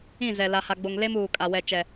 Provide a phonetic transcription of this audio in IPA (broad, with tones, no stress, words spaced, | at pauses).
ĩ˦˨ zɛ˨ la˨ha˨ɡ͡bo˨ŋ le˦m uː˨kʼa˨ wɛ˨ t͡ʃɛ˨